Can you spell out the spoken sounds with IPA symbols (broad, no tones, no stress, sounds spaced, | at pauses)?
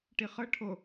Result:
ʈ i χ ɤ ʈʰ o